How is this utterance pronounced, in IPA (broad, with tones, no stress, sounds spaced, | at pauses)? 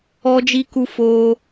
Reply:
ɔ˦ d͡ʒ i˦ k u˦ f oː˦